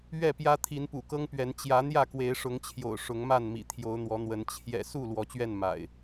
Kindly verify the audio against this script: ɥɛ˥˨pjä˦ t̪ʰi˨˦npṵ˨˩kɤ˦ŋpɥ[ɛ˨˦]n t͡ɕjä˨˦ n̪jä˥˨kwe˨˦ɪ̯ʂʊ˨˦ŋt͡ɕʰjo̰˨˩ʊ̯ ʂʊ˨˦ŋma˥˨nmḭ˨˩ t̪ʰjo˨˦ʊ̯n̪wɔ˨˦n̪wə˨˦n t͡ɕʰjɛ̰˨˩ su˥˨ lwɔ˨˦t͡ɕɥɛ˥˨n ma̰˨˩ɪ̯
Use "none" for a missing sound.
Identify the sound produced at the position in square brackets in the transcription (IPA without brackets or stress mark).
ɛ˨˦